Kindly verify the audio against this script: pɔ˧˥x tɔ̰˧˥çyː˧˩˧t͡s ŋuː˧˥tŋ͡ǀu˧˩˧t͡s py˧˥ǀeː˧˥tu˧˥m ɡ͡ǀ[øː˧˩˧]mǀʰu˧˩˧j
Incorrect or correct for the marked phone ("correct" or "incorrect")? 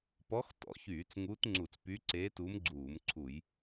incorrect